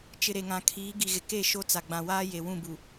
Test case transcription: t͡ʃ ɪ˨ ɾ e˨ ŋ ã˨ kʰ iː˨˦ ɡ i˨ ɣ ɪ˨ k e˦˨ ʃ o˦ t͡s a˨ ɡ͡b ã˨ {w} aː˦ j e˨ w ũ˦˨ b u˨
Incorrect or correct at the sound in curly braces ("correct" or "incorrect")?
correct